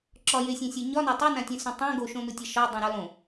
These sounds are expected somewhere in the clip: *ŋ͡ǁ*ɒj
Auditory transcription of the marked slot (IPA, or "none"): ǁ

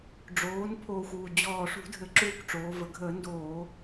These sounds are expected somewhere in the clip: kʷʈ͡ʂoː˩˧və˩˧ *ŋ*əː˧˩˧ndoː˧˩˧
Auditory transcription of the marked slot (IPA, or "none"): ɡʱ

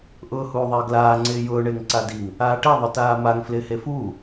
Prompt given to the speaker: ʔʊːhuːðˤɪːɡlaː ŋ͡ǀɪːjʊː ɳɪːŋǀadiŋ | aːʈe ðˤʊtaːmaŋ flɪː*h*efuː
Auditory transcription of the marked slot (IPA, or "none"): h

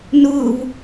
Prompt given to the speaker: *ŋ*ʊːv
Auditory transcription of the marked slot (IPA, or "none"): n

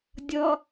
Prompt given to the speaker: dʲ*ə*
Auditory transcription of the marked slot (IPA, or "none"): ʌ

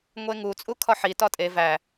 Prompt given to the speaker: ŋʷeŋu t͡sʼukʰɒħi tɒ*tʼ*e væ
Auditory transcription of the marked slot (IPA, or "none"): tʼ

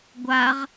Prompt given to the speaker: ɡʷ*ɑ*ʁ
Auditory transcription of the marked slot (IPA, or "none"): a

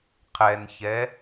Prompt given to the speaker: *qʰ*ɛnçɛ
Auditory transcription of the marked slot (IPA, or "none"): qʰ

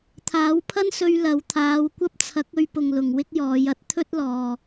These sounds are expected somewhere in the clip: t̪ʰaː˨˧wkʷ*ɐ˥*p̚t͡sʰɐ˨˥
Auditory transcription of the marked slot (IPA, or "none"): ɐ˥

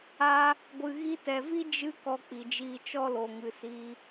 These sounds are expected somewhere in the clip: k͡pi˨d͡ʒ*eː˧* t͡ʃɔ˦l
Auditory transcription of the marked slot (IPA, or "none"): iː˧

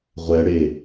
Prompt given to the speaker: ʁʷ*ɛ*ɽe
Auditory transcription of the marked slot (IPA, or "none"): ɛ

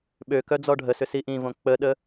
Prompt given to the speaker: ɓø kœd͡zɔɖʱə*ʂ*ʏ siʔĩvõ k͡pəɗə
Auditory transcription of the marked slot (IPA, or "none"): s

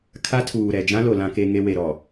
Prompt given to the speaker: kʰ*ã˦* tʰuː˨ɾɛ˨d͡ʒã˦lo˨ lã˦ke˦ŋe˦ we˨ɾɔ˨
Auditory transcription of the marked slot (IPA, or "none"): a˦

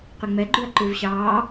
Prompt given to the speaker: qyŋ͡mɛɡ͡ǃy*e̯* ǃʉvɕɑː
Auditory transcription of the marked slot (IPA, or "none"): ɐ̯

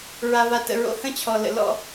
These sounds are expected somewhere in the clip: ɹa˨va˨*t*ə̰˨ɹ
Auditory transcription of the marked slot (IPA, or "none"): t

